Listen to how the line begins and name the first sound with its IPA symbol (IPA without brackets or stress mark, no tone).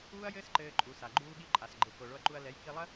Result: uː